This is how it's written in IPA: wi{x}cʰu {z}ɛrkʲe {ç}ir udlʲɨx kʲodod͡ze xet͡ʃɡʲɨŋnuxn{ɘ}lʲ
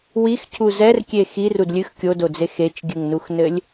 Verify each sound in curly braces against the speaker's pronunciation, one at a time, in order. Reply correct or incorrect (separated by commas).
correct, correct, incorrect, correct